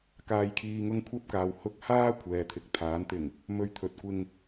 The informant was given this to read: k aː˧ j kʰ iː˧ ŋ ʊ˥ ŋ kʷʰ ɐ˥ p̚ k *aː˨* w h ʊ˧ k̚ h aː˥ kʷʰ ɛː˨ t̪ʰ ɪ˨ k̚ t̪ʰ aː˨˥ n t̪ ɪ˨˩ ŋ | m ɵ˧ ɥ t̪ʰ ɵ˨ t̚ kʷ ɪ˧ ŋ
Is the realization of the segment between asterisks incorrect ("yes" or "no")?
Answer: no